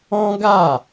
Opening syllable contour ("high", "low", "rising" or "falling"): high